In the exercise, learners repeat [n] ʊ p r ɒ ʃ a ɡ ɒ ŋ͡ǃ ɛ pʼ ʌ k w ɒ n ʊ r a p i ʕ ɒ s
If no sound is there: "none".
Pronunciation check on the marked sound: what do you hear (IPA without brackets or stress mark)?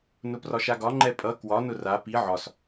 n